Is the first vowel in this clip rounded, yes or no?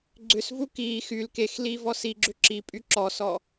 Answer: yes